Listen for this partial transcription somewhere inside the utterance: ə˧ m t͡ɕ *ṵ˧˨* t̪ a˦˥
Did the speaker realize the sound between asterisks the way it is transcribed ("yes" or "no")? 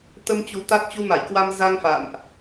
no